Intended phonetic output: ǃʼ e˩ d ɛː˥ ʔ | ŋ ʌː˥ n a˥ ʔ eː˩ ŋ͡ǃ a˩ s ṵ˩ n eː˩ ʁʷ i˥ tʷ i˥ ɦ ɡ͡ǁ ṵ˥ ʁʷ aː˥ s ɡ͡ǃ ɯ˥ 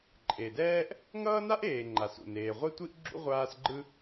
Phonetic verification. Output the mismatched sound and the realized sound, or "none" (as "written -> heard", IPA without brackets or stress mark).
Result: ɦ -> ʔ